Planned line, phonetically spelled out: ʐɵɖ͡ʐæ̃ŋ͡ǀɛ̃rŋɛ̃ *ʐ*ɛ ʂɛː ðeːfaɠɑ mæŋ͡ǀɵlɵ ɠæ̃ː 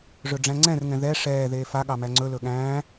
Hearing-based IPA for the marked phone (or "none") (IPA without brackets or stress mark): ð